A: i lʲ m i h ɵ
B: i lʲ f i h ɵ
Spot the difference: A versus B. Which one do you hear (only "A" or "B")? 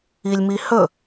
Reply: A